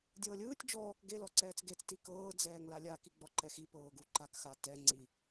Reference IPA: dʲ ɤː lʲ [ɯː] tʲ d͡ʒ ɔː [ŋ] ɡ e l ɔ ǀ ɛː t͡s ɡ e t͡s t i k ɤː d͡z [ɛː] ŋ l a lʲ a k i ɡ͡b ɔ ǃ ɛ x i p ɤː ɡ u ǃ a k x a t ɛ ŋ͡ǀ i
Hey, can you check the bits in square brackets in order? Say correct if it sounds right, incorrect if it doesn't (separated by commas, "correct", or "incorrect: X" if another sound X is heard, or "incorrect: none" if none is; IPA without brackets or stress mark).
correct, incorrect: k, correct